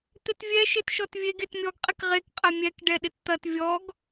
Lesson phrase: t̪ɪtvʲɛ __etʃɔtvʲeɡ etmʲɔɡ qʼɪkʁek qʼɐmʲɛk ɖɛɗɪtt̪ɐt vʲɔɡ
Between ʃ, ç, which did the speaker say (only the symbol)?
ʃ